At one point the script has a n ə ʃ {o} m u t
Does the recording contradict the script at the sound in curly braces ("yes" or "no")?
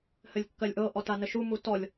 yes